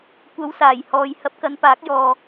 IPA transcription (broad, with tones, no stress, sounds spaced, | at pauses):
kʷ ɐ˨˧ w s aː˨˩ j h ɔː˨ j h ɐ˧ p̚ k ɐ˨˧ n p aː˨˥ k̚ j ɔː˨